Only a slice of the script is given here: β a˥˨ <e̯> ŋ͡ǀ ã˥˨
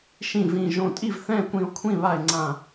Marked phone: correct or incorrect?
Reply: correct